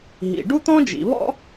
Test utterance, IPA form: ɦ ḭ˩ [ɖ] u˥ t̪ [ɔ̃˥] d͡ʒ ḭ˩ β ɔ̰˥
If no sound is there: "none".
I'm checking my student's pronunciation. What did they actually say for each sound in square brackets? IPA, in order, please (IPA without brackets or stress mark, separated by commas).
ɖ, ɔ̃˥